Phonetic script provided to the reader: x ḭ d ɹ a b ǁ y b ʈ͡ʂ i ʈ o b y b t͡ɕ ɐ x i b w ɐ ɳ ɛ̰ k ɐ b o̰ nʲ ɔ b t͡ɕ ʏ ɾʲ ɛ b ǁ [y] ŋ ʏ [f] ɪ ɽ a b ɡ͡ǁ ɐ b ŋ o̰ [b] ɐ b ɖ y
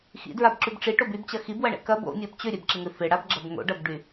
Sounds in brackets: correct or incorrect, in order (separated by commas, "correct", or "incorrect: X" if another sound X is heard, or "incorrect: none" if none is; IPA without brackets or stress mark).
incorrect: ɪ, correct, incorrect: ɖ